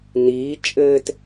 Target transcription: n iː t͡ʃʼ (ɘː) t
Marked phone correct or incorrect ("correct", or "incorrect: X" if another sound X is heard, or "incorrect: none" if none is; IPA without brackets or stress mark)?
correct